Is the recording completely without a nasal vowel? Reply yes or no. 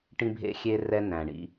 no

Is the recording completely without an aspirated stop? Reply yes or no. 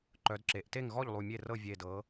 yes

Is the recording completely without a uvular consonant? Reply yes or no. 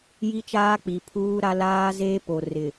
yes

